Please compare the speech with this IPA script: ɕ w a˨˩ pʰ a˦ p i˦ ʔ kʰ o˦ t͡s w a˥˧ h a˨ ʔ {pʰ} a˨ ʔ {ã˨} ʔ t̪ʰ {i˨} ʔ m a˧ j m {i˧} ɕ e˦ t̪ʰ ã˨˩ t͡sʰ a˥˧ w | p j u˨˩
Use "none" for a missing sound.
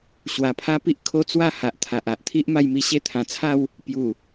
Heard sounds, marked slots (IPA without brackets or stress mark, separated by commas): t̪ʰ, a˨, i˦, i˧